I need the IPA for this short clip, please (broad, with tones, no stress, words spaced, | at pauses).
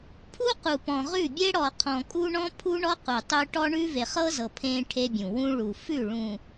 pʰu˦qu˨pɔ̃˨ ʁʉ˦˨bʲe˦ɽɔ˨ qʰɔ̃˨kʼu˦ ɳɔ̃˦pʰu˦ ɳɔ˦ qu˨tˤʉ˦ ʈɔ˦ɳʉ˦ ve˨χɤ˦zɤ˨ pʰẽ˦ ʈʰe˦bʲũ˨ wũ˦ɭu˨ fʉ˦˨ ɭũ˨